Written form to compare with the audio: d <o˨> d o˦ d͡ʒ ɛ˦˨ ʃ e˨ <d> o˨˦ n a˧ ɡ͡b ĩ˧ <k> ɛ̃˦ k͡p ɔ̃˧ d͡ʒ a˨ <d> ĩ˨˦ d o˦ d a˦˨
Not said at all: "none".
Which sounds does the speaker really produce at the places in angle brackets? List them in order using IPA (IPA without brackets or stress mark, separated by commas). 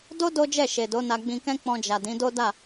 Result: o˦, d, k, d